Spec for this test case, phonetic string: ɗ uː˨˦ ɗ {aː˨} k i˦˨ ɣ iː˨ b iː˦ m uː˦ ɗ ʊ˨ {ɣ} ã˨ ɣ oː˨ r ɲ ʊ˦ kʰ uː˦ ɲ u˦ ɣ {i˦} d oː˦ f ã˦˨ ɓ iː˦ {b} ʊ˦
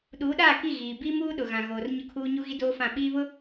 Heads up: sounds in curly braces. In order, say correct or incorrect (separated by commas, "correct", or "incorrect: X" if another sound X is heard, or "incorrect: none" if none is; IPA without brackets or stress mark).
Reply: incorrect: aː˦˨, correct, correct, incorrect: β